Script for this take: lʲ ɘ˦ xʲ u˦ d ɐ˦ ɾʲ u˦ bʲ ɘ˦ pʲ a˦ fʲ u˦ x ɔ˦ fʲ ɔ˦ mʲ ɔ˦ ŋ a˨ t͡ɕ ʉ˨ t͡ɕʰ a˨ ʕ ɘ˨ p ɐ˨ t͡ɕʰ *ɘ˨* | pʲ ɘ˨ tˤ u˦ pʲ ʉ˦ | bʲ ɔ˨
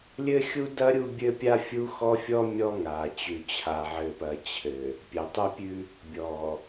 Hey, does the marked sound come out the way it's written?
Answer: yes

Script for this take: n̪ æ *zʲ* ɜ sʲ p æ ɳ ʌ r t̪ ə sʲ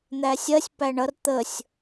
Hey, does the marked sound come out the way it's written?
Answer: no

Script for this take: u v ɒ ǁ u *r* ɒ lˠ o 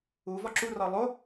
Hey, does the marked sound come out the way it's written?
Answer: yes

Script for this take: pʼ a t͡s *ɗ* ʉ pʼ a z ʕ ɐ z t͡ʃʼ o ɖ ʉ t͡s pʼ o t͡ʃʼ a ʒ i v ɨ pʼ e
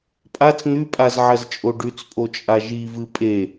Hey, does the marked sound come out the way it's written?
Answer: no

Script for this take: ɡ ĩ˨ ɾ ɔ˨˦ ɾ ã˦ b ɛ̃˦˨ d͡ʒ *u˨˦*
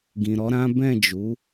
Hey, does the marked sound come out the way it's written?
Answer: yes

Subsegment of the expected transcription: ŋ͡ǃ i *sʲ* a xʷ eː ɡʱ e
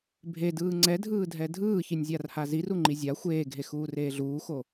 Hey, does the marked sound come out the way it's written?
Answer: no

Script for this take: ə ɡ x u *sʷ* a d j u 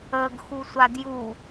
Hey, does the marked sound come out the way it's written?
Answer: yes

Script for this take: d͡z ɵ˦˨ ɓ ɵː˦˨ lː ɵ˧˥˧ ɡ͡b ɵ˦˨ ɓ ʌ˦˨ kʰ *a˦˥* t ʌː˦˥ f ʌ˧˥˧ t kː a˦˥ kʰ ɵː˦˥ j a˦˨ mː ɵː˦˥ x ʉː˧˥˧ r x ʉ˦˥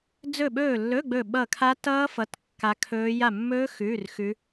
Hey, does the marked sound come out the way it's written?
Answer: yes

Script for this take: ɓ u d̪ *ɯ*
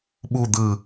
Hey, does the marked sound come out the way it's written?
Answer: yes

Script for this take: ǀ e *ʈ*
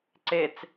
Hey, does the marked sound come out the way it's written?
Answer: no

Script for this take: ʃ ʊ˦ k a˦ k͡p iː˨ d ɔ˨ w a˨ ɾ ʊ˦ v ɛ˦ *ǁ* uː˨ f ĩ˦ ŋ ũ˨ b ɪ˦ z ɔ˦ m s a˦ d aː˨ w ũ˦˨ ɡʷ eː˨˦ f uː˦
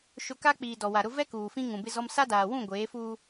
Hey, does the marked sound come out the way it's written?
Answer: no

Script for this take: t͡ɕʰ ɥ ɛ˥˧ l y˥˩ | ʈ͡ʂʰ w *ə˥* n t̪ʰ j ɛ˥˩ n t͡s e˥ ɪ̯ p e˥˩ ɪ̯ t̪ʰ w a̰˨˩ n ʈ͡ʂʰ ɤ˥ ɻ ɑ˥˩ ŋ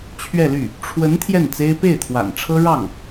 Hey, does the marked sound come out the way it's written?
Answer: no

